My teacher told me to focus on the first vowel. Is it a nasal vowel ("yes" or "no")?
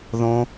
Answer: yes